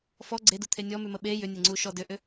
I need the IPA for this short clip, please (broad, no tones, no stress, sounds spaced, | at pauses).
f ɔ ɡ͡ǀ e d u t̪ʰ e nʲ ɔ m ʉ m ə ɓ e j ʏ nʲ e ŋ͡ǀ u ʃ ɔ d ʏ ʔ ʏ